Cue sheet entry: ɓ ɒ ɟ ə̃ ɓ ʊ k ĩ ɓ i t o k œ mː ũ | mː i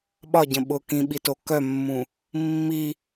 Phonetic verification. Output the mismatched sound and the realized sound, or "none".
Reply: none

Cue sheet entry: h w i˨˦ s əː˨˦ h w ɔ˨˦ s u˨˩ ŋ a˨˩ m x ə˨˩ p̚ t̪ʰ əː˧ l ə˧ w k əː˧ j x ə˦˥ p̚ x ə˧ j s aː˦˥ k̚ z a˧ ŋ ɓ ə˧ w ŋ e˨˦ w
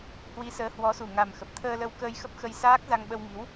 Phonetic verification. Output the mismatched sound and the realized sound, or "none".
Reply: e˨˦ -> i˨˦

